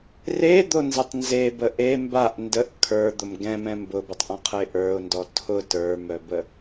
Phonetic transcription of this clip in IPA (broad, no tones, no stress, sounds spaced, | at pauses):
r e d̪ o n z ɛ tˤ n z e b ə ʔ e m b a ʔ n d ə ʔ kʰ ə˞ d̪ ʊ m ɡ ɛ̃ m ɛ̃ m b ʊ b ʊ tˤ ʔ ɔ̃ qʰ ə ɪ̯ ʔ ə˞ ʊ̯ n d ɔ tʰ ʊ t ə˞ m œ b ə